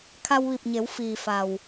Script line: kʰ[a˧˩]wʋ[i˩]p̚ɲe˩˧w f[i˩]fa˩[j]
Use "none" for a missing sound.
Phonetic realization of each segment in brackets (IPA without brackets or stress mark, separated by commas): a˧, i˧˩, iː˩, w